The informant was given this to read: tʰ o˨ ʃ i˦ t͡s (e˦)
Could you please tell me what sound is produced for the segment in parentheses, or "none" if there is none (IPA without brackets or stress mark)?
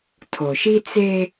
e˦